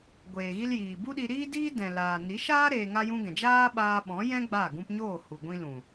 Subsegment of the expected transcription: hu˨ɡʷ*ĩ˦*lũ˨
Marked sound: incorrect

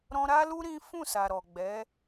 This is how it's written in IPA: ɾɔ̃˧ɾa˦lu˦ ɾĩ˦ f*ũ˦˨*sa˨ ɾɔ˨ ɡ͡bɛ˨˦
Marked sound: correct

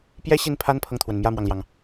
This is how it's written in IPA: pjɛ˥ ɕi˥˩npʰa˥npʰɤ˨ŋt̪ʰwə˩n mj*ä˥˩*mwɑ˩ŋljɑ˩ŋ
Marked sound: correct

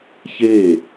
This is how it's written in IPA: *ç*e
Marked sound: correct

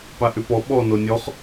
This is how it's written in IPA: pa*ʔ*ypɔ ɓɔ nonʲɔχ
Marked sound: correct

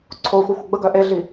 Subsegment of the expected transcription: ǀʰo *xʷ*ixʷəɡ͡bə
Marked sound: correct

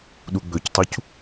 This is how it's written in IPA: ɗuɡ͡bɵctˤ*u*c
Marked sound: correct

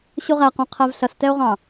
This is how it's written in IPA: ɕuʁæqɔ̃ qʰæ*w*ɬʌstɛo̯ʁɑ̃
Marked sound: incorrect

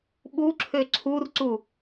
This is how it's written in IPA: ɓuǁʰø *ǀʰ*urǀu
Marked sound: correct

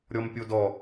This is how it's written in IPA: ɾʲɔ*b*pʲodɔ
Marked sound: incorrect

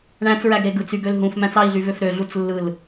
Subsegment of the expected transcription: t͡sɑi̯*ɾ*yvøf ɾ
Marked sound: incorrect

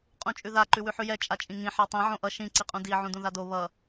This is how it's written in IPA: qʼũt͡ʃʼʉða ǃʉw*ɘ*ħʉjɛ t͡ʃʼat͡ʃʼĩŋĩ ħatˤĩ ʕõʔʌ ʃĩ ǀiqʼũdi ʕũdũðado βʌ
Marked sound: incorrect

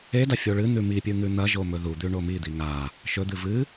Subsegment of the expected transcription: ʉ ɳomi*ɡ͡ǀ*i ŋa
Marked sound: incorrect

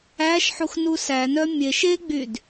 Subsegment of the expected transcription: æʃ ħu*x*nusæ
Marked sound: correct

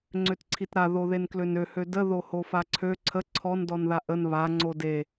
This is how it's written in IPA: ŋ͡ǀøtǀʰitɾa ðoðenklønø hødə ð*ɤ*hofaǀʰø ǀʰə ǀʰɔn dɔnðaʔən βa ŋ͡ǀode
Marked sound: incorrect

